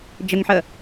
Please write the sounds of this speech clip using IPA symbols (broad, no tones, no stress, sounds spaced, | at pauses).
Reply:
d͡ʒ ə ŋ ħ ə